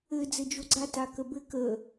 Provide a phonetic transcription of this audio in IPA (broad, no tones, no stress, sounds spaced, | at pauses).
ɘ d͡z ɘ d͡ʒ o ɡ͡ǀ a t a k ə b ɘ k ə